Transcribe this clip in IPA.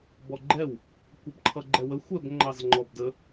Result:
b ɔ ɡ͡ǃ ɛ w | kʷ ʌ b ǃʰ ʌ ɡ͡ǃ ɛ w ə xʷ ɛ b ŋ͡ǃ ɑ z ŋ͡ǃ ɔ b d ə

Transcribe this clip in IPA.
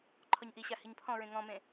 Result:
ǃʰ ɔ ɲ ʔ i ɕ a h i ɲ pʰ ɔ̃ ɹ ẽ ŋ ɔ̃ m ẽ

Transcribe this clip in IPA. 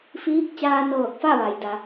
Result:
f iː˧˥ k̚ t͡ɕ aː˧ n ɤː˧˩ k̚ f a˥˨ ʋ a˩ j d a˩˧

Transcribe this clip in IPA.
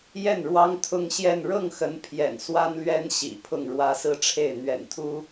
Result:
j ɛ˥˩ n ɻ w ɑ˥ ŋ t̪ʰ ʊ˥ ŋ ɕ j ɛ˥˧ n ɻ ɤ˥˩ ŋ x ə˧˥ n pʰ j ɛ̰˨˩ n s w a˥ n l ɥ ɛ˥ n ɕ ḭ˨˩ pʰ ʊ˥˩ ŋ ɻ w ä˥ s ɹ̩˥˧ ʈ͡ʂʰ e˥˩ ɪ̯ n̪ ɥ ɛ̰˨˩ n t̪ʰ u˥

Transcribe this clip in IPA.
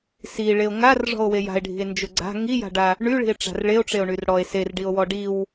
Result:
s i ɭ e o̯ ŋ a r ʐ ɔ̤ o̯ w e j a̤ e̯ ɖʱ i̤ e̯ n d͡ʒ ʊ ɡ͡ǀ a̤ ŋ i j a̤ ɖ a | ɳ y ɭ i̤ e̯ ʈ͡ʂ a̤ r ɭ e o̯ ʈ͡ʂ e o̯ ɳ y r ɽ ɔ e̯ s e r ɖ i o̯ w ɔ ɖ i w

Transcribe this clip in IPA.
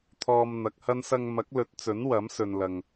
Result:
t̪ʰ ɔː˧ m n̪ ɐ˨˥ k̚ h ɐ˥ n s ɐ˧ ŋ m ɐ˨˥ k̚ l ɵ˨˥ t̚ t͡s ɵ˨˥ n w ɐ˨˥ m s ɵ˨ n l ɐ˨ ŋ

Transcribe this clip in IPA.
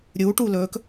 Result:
ɾʲ uː ʈ u l ɵː k

